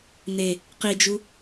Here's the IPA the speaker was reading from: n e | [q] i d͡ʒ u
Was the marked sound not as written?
no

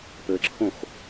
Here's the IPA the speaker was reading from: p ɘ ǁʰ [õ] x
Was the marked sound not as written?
no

